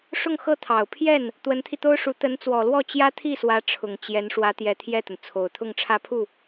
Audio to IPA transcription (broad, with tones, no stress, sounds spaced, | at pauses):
ʂ ʊ˥˧ ŋ x ɤ˥˩ t̪ʰ ɑ˨˩ ʊ̯ pʰ j ɛ˥˩ n | t̪ w ə˧˥ n t̪ʰ i˧ t̪ o˥ ʊ̯ ʂ u˧˥ t̪ ə˧˥ n t͡s w ɔ˨˩ l w ɔ˥˩ t͡ɕ j ä˥ t̪ʰ i˥˩ s w ä˧˥ ʈ͡ʂʰ ʊ˨˩ ŋ t͡ɕ j ɛ˧˥ n ʂ w ä˧˥ t̪ j ɛ˧˥ t̪ʰ j ɛ˥˩ t̪ ə˩ n t͡sʰ o˨˩ ʊ̯ t̪ʰ ʊ˥˧ ŋ ʈ͡ʂʰ ä˥˧ pʰ u˥˩